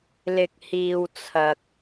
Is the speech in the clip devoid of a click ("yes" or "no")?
yes